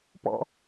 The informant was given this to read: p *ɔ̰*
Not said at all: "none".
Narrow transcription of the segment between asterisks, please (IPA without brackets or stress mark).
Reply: ɔ̰